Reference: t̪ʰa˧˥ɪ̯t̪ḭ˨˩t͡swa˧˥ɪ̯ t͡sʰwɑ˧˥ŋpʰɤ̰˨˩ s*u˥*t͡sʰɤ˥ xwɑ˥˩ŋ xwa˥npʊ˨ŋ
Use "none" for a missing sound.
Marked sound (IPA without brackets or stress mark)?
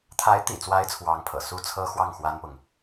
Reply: u˥